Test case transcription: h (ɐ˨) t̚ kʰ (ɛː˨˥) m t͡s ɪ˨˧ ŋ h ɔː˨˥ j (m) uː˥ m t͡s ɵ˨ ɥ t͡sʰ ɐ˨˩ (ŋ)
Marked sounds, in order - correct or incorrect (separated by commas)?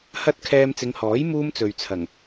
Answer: incorrect, incorrect, correct, correct